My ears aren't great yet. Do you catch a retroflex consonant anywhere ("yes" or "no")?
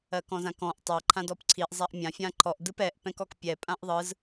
no